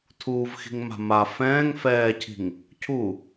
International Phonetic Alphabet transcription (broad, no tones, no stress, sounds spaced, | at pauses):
tʰ uː v x i̤ ŋ m a̤ m a f ɛ̃ː ŋ f ɛː cʰ i̤ ŋ | cʰ u